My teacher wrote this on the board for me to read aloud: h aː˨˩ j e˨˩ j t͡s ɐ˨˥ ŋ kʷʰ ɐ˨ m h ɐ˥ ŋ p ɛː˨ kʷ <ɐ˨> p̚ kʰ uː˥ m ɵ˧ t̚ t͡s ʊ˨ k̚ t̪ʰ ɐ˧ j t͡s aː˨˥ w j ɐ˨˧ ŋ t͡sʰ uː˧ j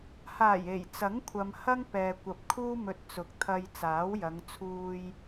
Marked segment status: correct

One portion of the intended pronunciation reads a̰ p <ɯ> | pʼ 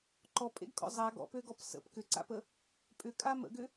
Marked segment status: incorrect: ə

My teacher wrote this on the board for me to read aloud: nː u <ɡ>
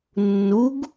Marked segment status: correct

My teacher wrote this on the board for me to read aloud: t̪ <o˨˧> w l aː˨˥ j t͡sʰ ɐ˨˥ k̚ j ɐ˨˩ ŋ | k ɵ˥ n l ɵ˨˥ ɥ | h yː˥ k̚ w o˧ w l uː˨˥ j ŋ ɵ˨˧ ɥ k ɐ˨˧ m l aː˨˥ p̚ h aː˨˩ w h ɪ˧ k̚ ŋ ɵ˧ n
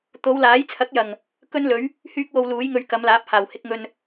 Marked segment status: correct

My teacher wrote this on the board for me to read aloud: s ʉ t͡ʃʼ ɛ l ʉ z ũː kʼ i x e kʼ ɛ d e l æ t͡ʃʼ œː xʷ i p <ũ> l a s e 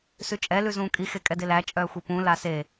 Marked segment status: correct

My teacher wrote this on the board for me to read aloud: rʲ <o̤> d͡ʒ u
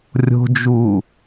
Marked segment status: correct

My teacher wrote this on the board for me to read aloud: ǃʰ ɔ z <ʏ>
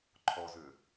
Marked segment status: correct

